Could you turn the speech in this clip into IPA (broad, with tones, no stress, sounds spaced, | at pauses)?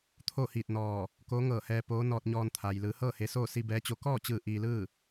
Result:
t̪ʰ o˥˨ h iː˧˩ t̚ n ɔː˧˩ | k oː˧˥ ŋ ɤː˧˩ h ɛː˧ p oː˧˥ n ɔː˧ t̚ ɲ ɔː˧ n t̪ʰ a˩ j l ɯː˩˧ h ɤː˥˨ h e˧ s oː˥˨ s i˧ b ɛː˧˥ t͡ɕ o˧˥ k ɔː˥˨ t͡ɕ ɯː˧˩ ʔ iː˧ l ɯː˥˨